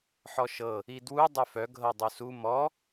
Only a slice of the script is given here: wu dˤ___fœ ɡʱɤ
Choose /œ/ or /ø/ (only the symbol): œ